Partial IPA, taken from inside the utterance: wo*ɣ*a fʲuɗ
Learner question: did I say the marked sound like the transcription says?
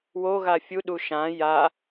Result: yes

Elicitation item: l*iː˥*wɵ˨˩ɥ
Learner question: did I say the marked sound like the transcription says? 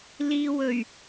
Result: no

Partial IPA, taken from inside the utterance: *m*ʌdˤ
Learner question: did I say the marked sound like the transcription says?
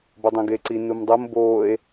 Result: no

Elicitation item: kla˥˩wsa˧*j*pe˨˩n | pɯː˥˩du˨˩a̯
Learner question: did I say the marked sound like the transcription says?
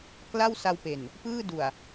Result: no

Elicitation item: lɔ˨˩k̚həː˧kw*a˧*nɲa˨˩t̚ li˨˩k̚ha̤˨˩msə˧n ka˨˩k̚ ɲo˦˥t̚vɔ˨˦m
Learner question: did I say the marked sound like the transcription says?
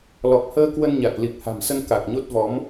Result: no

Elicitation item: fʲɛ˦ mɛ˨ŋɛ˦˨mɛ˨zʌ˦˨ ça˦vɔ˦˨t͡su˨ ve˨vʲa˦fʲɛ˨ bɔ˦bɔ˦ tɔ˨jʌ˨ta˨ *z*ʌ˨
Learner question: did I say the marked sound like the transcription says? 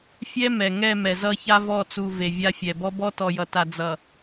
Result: no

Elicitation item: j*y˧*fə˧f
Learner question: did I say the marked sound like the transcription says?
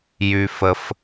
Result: yes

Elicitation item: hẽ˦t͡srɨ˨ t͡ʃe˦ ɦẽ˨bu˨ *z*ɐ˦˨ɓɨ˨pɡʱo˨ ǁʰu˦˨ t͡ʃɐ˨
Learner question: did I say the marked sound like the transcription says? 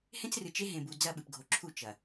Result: no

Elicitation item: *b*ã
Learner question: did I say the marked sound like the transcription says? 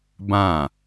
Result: yes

